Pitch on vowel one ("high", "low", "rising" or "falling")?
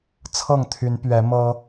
falling